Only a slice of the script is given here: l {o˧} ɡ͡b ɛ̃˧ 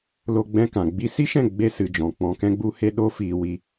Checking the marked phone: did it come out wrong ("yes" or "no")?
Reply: no